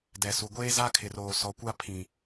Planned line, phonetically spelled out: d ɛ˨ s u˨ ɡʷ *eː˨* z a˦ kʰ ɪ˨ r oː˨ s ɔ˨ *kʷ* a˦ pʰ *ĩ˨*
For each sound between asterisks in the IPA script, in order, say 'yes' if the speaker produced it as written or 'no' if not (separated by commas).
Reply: no, yes, yes